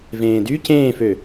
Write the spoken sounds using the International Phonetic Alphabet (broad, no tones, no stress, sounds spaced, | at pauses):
v ẽː d y c ẽː f ø